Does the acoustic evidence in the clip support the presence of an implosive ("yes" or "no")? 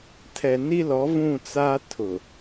no